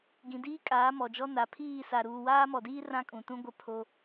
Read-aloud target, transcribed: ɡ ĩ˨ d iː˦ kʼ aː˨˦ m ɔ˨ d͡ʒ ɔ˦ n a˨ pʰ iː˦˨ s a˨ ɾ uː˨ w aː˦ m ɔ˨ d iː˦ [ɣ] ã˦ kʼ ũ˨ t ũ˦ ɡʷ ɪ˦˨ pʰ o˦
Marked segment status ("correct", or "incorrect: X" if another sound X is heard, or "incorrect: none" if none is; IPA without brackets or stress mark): incorrect: r